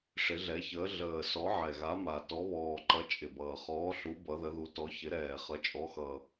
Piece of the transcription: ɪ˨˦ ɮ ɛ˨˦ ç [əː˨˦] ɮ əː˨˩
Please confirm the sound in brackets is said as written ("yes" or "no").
yes